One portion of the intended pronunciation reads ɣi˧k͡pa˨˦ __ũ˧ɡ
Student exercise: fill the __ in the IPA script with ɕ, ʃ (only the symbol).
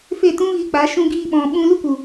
ʃ